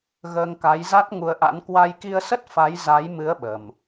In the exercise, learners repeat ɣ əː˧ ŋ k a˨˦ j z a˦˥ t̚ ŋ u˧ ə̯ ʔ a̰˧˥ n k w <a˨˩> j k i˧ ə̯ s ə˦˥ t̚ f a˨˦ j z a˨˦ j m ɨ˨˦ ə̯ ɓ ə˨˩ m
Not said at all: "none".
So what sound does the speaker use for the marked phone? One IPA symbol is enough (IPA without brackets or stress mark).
a˧